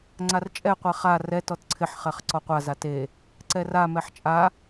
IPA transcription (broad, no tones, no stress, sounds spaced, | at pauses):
ŋ͡ǀ a r t͡ʃʼ ɛ qʷ e χ a r ɛ t ɔ t ǀʰ ɪ ħ χ ɛ χ ǀ ɔ qʷ a z a t e | ǀ ɛ r a m ɛ ħ t͡ʃʼ a